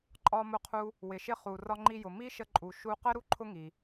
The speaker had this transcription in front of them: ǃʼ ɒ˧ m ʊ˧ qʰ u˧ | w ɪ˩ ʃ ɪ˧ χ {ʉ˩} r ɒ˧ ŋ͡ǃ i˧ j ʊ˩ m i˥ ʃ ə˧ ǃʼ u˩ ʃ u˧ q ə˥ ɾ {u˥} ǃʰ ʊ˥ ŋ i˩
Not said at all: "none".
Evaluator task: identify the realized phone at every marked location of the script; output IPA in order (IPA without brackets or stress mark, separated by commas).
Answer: u˩, u˥